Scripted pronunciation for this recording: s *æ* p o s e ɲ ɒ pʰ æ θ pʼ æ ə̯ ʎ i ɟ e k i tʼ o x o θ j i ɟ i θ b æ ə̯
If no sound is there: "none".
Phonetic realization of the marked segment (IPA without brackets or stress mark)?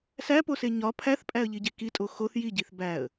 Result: æ